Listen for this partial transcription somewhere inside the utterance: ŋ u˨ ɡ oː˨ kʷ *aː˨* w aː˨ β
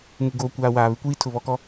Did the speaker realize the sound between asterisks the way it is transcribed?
yes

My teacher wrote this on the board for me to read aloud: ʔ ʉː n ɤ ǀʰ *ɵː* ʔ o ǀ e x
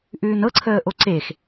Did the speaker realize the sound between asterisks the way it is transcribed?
no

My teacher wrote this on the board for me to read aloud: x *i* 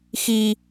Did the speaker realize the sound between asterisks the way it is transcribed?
yes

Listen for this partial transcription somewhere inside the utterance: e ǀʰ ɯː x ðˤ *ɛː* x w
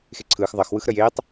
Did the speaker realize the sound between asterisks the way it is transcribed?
no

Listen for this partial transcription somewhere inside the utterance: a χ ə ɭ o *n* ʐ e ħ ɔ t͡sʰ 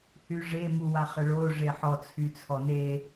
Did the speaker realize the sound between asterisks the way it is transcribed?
no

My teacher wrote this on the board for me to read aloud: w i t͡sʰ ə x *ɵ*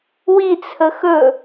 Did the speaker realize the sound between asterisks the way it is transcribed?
yes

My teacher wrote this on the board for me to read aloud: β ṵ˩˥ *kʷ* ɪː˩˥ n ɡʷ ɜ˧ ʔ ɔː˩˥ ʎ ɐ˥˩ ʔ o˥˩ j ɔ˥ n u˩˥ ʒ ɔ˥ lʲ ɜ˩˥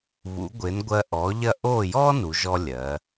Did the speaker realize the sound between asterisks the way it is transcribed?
no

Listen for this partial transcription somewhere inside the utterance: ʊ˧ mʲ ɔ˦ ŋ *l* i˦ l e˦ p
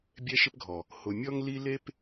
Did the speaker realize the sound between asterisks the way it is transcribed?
yes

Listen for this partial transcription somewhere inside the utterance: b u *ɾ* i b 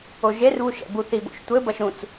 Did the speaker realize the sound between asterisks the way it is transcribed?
no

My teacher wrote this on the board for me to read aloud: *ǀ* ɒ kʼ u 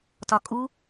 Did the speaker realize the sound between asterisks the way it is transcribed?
no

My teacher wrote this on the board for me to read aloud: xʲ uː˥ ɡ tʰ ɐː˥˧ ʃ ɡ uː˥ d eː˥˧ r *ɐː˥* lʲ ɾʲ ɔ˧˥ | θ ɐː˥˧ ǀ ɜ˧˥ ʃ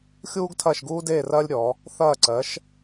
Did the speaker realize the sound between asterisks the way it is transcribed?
yes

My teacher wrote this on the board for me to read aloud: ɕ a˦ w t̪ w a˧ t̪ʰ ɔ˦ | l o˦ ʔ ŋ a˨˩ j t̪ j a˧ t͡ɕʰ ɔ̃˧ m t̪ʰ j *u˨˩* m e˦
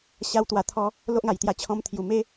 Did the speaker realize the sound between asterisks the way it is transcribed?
yes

